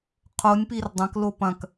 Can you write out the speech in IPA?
qʰ o nʲ p i r dˤ ɐ̃ k l o p ɐ̃ k

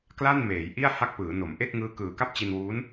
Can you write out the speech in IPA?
k l a˥˩ n m eː˩˦ j ʔ i˥˩ a̯ h a˥˩ k̚ p ɯː˩˦ n o˩˦ m ʔ e˥˩ k̚ ŋ ɯː˦˥ k ɯː˨˩ k a˥˩ p̚ t͡ɕ i˧ n w uː˦˥ n

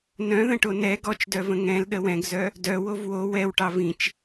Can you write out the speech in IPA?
n œ̃ ð ə̃ ʈ o n ɛ ɡ ɔ t͡ʃ d œ v ə̃ ŋ ɛ̃ l ɗ ə w ɛ̃ ɡ z œ | d œ w o v w o w ɛ w ʈ ɑ v ĩ t͡ʃ

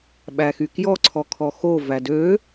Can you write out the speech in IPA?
ɓ æ x y k j ɔ ǀʰ ɔ kʰ ɔ x o v æ d ø

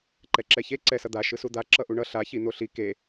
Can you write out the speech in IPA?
ǃ ɛ ǁ ɛ ç e ǀ ɛ s ʌ d̪ a ʃ ɯ s u d̪ a ǁ ʌ ʔ u ɳ ʌ ɬ a ç i n̪ o ɬ i k e

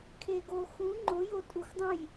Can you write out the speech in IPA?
kʰ e ɡ o x ũ ŋ͡ǃ ʊ j o tʼ u x dˤ ũ j

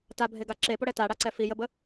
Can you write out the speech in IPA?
t a bʱ e ɡ a ǁ e p o ɽ ɛ t a ɽ a ǀ ɛ f i j ə b ə

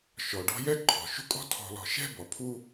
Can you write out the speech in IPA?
ʃ ɔ˩ ɖ ɔ̤˦ j ɛ˥ ǃʰ ɔ̤˩ ʃ ṳ˦ kʼ ɔ̤˦ tʰ ɔ̤˨ l ɔ̤˨ ʃ ɛ̤˦ b ɔ˩ pʰ u˦

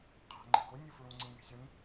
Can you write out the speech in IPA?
qʰ æ̤ ŋ͡ǃ ḭ ɡ o nʲ u f ɹ ũ ŋ͡ǀ ĩ ŋ e̤ sʲ w ĩ

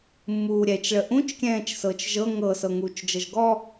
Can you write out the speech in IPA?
mː uː ɾʲ ɛ t͡ʃ ɭ ə ʔ ũ t͡ʃ kʲ ɛ̃ː t͡ʃ s ɤ t͡ʃ ʒ ɤ ŋ ɤ s ɤ ŋ uː t͡ʃ d͡ʒ ɤ ʒ ɡ ɔ

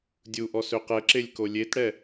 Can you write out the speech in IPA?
dʲ u ʔ ɔ s ø q ɛ ǁ e lʲ k o lʲ e t ɽ ɛ

